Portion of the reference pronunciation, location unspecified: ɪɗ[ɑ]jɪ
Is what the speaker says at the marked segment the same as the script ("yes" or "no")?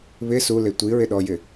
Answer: no